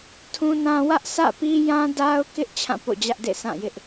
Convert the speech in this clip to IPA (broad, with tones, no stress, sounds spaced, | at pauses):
tʰ ũ˦ n ã˦ w ä˦ ʔ s ä̰˦˨ p i˦ j ã˦ d a˦ ʊ̯ k ɪ˦ ʔ t͡ɕʰ ã˦˨ p o̰˦˨ d͡ʑ ä˦ ʔ d ḛ˦˨ s ã˦˨ j ɪ˦ ʔ